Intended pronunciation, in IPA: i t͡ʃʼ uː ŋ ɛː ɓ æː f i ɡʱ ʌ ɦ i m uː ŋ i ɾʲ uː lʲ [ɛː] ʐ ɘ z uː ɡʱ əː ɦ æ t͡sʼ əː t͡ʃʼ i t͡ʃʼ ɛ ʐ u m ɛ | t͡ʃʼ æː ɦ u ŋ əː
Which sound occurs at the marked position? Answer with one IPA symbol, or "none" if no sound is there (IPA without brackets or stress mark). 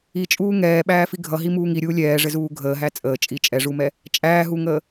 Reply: ɛː